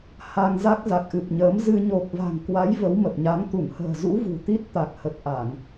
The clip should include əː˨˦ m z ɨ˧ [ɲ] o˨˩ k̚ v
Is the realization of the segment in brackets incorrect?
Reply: no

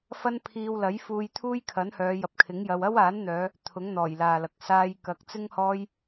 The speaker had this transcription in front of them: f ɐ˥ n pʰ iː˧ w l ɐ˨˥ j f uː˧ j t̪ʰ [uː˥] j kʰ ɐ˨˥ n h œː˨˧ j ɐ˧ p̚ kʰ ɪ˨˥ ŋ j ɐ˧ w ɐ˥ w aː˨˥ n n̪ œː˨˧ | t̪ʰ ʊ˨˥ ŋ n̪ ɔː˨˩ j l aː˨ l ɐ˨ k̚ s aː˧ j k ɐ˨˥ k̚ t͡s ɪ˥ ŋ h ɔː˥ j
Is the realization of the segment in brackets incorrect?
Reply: no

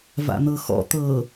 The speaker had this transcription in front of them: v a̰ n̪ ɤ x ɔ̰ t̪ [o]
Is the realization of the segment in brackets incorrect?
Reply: yes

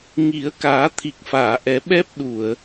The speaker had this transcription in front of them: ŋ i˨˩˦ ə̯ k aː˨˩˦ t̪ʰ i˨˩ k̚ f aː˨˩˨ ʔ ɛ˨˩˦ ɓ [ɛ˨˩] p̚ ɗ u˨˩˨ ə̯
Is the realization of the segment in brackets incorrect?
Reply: yes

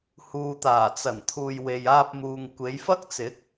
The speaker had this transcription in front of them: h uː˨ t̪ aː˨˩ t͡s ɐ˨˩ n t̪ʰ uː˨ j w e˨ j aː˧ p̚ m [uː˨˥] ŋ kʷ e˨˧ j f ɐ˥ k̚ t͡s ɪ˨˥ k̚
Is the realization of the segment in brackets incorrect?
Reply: yes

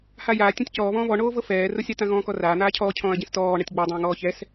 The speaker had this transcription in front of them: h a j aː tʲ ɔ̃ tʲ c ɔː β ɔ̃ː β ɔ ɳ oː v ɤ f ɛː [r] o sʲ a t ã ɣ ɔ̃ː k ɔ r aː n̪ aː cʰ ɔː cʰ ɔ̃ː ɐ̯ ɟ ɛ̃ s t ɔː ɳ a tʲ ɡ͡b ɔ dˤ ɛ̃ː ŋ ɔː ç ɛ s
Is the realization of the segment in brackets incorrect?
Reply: no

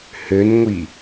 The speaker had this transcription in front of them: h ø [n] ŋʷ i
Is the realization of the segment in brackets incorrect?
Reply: no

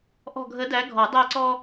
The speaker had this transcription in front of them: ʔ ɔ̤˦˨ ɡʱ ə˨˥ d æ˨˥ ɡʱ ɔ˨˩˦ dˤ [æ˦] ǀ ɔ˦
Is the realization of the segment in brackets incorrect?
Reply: yes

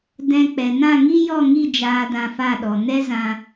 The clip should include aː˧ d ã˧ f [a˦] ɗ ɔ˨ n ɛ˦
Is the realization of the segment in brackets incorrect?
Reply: yes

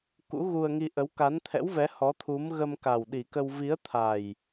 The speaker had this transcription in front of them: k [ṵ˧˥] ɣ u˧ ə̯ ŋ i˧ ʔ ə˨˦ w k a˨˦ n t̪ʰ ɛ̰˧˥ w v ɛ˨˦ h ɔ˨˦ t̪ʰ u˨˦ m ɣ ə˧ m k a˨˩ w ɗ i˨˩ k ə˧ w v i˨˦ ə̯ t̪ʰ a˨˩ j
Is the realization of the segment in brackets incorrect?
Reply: no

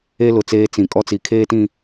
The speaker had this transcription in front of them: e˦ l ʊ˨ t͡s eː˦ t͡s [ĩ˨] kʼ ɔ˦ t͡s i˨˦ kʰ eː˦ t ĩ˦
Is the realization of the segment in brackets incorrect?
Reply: no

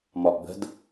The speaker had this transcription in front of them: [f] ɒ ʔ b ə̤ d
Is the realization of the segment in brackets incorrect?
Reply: yes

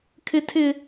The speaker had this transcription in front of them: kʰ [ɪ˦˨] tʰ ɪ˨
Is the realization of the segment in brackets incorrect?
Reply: yes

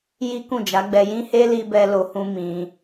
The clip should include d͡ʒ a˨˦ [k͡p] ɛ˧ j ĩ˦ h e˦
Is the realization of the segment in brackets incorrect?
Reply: yes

